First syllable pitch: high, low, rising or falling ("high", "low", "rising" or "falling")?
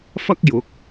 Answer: high